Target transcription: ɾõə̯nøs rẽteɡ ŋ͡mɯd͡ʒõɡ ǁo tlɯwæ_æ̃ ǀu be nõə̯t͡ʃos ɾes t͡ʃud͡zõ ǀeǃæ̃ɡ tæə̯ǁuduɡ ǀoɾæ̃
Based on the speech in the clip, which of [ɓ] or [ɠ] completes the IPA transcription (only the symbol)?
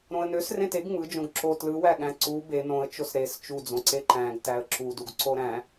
ɠ